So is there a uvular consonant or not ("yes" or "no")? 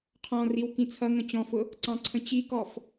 yes